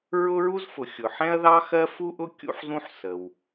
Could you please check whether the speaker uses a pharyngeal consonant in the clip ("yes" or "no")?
yes